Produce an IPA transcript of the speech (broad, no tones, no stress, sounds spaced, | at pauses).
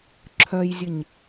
ǁʰ œ j zʲ ɨ ɲ